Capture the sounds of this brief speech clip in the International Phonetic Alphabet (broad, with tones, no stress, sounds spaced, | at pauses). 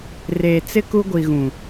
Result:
r eː˨ t͡s ɪ˦ k u˦ ɡʷ i˨ ɣ ũ˨